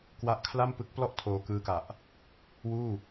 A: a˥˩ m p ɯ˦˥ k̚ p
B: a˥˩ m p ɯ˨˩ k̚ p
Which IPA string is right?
A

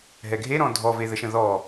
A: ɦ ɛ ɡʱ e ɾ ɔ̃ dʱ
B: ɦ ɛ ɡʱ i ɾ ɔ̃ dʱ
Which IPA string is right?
A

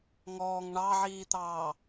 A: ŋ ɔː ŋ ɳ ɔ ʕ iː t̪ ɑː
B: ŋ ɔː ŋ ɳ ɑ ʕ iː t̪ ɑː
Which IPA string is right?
B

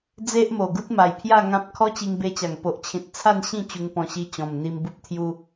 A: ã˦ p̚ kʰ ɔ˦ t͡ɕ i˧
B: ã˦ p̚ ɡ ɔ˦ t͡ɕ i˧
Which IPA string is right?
A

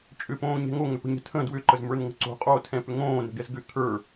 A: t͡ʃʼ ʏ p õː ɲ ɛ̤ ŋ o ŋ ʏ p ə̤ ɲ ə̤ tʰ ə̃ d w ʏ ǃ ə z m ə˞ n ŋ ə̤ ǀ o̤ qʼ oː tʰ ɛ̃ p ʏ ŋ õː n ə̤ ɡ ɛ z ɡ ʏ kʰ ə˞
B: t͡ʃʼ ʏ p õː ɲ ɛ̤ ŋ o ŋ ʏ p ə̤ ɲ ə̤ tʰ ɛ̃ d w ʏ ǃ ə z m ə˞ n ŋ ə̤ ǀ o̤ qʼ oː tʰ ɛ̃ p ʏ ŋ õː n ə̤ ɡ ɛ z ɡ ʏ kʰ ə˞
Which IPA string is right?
A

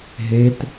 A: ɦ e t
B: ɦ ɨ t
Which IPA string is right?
A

